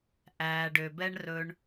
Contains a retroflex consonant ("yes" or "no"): yes